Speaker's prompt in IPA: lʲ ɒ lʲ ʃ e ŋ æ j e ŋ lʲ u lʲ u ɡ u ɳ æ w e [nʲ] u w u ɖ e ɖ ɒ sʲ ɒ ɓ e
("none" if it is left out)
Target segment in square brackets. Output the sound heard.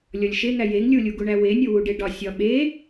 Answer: nʲ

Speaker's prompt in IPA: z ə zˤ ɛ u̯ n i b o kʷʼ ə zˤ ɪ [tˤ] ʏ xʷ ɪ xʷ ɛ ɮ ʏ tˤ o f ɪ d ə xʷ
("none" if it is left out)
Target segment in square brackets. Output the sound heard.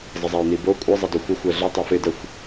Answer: d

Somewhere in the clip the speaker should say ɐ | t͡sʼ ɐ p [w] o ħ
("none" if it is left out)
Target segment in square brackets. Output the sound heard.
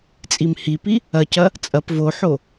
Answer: v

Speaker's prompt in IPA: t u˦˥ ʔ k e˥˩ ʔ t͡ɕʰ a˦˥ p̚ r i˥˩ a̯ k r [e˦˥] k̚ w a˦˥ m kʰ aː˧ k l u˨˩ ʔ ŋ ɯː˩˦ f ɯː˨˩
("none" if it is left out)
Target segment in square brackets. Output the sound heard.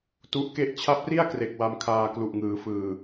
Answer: e˨˩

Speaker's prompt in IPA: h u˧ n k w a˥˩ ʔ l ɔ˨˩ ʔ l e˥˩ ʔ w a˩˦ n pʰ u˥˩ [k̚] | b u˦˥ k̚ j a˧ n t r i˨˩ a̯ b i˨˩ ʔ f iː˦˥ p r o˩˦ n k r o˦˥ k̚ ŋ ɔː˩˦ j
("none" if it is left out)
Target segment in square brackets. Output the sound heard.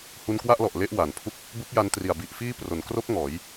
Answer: k̚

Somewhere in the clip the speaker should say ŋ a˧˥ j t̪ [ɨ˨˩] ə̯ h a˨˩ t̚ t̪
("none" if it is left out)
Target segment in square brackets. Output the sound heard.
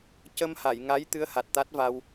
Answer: ɨ˧˥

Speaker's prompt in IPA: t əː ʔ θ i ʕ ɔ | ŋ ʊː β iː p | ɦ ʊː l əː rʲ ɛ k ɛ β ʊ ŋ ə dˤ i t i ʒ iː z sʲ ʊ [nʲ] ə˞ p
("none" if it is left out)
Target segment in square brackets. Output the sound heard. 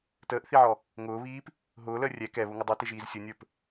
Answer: nʲ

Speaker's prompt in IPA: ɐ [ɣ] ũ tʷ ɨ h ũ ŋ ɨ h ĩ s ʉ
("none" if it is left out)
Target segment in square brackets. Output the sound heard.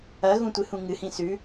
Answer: ɣ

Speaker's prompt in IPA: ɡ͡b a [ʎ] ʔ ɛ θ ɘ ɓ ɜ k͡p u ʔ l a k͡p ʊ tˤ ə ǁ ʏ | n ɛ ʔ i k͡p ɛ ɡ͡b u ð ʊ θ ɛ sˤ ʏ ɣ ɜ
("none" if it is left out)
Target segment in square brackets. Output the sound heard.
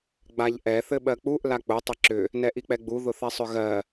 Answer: ʎ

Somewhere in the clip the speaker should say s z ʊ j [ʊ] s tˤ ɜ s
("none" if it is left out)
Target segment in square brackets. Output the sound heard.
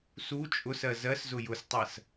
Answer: ʊ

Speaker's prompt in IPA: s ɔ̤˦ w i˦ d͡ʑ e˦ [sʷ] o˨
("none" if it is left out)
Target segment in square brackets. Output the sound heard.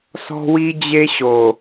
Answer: ɕ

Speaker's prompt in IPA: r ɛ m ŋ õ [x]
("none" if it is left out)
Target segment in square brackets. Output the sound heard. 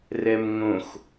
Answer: x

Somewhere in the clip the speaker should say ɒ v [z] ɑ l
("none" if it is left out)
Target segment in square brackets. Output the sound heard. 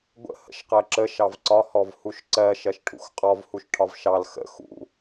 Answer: ʃ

